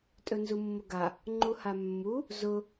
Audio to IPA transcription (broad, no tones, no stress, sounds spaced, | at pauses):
tʼ ɵ n z u mː ʊ ɡ a | ŋ͡ǃ u h a mː u | z ʊ